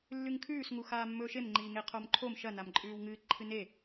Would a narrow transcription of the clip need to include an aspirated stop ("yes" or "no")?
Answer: yes